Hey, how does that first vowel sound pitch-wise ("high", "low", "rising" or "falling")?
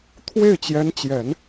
falling